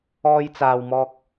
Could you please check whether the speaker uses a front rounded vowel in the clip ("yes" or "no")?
no